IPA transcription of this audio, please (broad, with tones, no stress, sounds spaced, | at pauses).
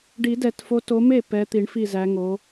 ɖ i˨˩˦ d ɛ˨˩˦ t f o˨˦ t o˨˦ m e˥˩ p ɛ˨˦ t̪ i˨˩˦ ɳ f i˥˩ z æ˨˦ ŋ o˨˦